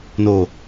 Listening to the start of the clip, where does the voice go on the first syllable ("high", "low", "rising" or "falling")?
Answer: low